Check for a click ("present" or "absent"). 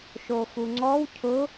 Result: present